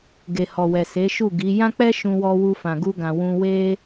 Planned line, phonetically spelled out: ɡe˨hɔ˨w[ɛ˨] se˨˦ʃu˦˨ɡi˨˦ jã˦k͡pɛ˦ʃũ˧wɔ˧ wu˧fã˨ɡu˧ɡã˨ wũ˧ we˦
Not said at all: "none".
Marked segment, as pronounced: ɛ˨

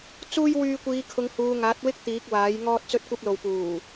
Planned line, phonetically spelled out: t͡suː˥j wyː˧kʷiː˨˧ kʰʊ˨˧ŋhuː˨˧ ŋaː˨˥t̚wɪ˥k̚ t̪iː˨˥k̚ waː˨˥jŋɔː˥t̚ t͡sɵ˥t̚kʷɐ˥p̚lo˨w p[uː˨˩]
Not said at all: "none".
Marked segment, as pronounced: uː˨˩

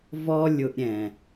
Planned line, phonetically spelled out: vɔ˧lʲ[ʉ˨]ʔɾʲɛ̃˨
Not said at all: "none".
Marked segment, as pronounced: ʊ˨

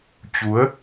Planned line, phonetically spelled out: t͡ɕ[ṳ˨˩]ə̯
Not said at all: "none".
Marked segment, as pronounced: u˨˦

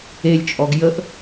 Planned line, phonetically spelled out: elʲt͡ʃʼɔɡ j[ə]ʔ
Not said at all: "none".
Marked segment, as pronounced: ə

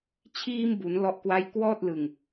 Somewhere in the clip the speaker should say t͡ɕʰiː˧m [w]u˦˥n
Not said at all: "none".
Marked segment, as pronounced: b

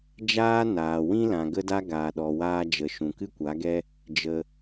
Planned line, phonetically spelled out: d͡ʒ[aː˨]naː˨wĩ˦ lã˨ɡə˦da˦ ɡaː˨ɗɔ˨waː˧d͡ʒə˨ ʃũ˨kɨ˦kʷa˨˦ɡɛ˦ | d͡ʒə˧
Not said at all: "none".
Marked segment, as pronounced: aː˦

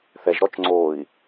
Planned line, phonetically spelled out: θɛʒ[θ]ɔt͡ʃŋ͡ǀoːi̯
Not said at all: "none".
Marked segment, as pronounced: ɾ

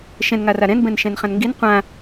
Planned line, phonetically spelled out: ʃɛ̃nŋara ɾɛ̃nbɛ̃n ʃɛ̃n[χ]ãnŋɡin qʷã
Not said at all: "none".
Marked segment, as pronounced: χ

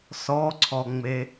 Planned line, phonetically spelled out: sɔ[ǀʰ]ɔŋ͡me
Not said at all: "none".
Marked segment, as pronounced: ǀʰ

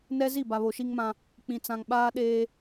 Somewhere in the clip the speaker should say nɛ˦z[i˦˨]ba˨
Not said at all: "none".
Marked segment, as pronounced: i˦˨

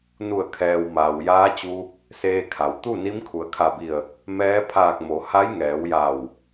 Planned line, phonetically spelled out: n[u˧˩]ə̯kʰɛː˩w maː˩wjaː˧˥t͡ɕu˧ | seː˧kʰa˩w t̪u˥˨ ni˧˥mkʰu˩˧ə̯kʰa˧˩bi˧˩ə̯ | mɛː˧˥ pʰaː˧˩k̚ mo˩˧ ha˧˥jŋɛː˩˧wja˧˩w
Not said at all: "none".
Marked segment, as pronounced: u˧˩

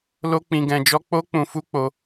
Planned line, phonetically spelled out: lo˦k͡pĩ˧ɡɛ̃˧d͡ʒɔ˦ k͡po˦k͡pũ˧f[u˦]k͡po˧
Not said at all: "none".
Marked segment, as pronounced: u˦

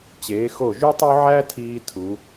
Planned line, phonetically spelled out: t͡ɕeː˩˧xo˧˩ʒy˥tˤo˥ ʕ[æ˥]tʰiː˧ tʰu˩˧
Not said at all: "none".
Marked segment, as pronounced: æ˥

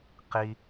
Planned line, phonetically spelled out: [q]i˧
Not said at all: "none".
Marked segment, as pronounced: q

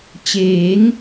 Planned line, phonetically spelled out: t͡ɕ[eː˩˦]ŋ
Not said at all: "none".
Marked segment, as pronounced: eː˩˦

